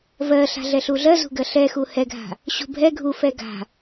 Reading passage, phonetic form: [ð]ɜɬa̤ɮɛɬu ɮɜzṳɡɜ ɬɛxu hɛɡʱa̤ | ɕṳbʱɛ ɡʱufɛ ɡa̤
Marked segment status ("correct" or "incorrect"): incorrect